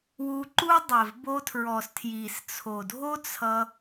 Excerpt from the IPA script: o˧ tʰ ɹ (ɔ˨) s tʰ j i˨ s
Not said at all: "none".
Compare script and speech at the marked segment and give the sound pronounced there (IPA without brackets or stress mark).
ɔ˨